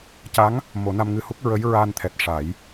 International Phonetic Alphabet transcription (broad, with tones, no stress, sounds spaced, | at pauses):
c a˧˥ ŋ | m o˨˩˦ n a˧ m ŋ ɨ˧ h u˦˥ k̚ ɹ ə˧˥ j ɹ aː˧ n t̪ʰ ɛ˨˩ t̚ ʂ a˨˩˦ j